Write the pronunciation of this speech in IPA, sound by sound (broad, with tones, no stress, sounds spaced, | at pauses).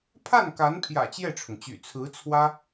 pʰ a˥˩ n k a˧˥ n pʰ j ä̰˨˩ t͡ɕ j ɛ˥˩ ʈ͡ʂʰ ʊ˩ ŋ t͡ɕ y̰˨˩ t͡sʰ ɹ̩˧˥ t͡sʰ w ä˥